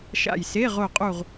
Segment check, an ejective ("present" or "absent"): present